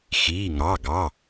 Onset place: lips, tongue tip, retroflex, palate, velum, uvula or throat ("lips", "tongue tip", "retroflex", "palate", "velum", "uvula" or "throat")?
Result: velum